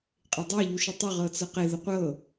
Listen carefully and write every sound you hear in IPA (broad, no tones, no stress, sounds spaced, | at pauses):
qʼ e dˤ ɤ ʎ u ʃ ə tˤ ə ʁ ɤ t͡s ɤ q e ð ə qʷ ɤ